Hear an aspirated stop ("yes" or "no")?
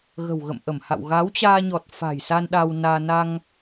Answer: no